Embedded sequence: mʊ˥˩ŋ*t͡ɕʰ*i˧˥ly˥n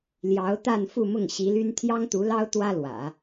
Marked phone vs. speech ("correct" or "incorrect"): incorrect